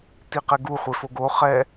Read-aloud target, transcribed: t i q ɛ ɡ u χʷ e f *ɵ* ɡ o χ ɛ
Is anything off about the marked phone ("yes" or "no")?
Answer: yes